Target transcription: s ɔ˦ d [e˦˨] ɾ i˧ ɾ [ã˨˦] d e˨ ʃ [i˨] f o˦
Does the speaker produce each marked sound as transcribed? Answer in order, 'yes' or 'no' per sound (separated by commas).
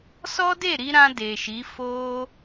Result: yes, no, no